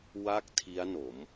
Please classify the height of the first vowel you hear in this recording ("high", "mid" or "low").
low